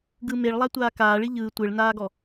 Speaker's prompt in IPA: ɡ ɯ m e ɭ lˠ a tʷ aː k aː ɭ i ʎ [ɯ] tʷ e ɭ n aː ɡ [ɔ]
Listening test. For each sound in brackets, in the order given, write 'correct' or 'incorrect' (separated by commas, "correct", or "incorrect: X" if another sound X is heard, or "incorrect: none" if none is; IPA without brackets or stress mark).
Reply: incorrect: ɯː, correct